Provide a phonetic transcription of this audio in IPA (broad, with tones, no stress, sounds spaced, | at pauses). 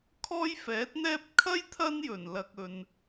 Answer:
kʰ ɔː˥ j f ɛː˨˥ t̚ n̪ ɛː˥ p̚ kʰ ɐ˥ j t̪ʰ ɐ˥ n j ɵ˨˩ n l ɐ˨ k̚ ɵ˨ n